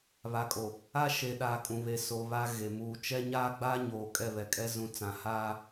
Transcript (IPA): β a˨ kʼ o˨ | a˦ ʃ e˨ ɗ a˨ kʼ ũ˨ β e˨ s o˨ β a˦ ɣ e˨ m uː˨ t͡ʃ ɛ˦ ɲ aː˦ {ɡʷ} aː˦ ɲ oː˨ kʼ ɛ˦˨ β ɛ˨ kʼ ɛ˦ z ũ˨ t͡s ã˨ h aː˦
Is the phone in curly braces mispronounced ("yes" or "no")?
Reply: yes